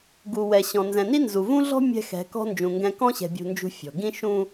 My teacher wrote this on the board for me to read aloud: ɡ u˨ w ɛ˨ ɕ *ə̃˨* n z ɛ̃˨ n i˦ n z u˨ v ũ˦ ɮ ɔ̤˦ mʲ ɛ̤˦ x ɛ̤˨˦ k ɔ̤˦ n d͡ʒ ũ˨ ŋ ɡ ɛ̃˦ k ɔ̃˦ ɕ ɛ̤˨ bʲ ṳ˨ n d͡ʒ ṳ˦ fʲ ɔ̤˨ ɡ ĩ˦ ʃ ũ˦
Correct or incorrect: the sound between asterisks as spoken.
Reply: incorrect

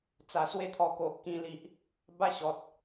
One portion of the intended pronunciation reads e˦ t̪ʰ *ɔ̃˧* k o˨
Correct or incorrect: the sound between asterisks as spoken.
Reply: incorrect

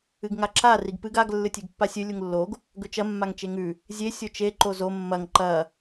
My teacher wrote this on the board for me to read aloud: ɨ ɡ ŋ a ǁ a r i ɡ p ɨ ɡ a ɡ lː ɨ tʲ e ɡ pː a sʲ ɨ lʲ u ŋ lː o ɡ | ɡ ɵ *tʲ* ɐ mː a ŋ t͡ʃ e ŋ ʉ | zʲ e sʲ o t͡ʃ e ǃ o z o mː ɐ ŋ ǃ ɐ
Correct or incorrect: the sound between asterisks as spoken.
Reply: incorrect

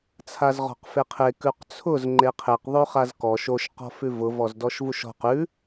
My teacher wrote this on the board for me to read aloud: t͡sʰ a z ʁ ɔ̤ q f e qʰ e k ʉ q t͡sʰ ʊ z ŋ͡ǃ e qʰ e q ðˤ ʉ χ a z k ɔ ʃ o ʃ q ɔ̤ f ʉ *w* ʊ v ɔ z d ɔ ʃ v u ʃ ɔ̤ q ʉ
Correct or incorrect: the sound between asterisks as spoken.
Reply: incorrect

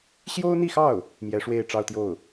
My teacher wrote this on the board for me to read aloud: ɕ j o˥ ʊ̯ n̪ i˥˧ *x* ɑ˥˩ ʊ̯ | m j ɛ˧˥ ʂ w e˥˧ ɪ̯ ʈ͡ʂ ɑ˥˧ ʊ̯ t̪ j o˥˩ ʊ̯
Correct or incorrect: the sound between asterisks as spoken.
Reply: correct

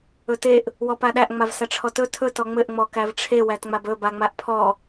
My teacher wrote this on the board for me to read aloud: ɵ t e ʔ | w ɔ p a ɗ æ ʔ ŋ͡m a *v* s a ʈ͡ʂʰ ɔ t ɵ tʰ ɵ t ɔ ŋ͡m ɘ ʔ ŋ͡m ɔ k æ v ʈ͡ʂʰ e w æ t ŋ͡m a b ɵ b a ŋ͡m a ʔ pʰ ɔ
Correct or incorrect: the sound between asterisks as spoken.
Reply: correct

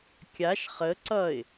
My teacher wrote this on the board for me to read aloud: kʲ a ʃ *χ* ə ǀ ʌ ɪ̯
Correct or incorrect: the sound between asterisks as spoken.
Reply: correct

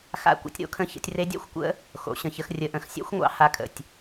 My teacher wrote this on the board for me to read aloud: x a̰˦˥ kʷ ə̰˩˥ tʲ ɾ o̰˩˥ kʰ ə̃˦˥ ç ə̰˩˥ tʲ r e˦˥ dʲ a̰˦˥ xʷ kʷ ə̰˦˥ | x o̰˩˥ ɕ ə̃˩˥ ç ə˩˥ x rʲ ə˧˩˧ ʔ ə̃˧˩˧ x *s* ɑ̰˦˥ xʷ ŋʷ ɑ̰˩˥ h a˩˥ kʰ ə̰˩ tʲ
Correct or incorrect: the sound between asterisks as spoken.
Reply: incorrect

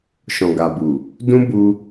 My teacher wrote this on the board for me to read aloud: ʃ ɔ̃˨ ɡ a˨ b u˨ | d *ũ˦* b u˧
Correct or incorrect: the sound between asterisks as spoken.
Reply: correct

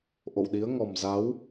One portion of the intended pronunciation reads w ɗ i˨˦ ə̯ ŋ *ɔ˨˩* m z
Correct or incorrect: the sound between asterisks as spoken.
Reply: correct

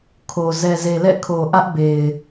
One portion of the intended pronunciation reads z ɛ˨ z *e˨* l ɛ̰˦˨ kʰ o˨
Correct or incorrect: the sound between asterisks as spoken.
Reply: correct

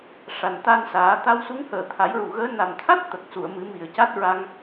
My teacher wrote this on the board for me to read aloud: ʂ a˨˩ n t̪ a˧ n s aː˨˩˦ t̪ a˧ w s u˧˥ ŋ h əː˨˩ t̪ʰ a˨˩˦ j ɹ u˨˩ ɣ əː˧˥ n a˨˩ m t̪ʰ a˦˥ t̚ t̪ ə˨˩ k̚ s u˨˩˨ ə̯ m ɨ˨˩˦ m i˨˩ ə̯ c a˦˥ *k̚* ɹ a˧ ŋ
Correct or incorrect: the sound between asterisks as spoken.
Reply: incorrect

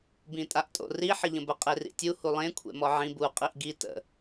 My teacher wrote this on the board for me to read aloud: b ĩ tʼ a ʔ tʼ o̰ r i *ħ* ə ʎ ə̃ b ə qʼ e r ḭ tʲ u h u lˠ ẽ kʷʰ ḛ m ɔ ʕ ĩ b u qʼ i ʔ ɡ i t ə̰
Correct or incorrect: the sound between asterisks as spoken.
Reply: correct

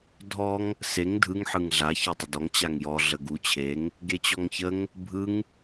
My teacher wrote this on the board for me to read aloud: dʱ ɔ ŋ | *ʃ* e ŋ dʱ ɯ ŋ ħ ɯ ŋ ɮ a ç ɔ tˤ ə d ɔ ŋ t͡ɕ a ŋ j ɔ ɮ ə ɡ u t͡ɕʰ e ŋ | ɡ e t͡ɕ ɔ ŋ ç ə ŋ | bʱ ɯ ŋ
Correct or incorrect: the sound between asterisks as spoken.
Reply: incorrect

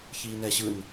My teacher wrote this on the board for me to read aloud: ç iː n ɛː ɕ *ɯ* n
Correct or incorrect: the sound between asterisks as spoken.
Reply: correct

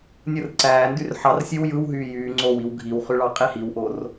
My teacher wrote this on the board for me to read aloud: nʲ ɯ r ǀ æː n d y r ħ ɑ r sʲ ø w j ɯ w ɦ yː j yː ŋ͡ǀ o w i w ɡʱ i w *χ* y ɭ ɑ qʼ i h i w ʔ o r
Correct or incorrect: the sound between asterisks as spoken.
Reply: correct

